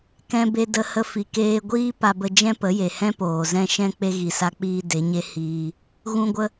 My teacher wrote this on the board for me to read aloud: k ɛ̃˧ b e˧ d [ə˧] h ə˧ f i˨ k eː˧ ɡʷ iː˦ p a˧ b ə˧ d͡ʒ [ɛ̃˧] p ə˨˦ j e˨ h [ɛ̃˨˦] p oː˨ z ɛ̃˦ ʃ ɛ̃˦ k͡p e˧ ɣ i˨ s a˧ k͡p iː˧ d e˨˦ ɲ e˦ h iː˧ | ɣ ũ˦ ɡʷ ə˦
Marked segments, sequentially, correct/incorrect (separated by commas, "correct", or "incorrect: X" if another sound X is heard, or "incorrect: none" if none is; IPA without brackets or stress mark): correct, incorrect: ɛ̃˦, incorrect: ɛ̃˦